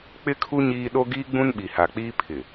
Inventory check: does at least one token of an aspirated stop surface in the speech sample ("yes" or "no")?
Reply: yes